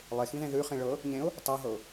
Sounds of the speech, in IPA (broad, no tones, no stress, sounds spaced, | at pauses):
lˠ e x ĩ ð ẽ ð ʉ χ ĩ ɭ ɤ | ɲ ẽ ʊ̯ | tˤ ɤ ɦ ɤ ʊ̯